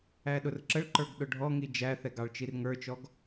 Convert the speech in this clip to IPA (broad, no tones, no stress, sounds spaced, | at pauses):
æ ɗ ʊ r ǁ ə ɭ ǃ ə˞ ɡ ɗ ʊ ɖʱ ɔ ŋ i d͡ʒ æ θ ɛ ɡ ɑ ɭ t͡ʃ i r ŋ ə˞ t͡ʃ ɔ ɡ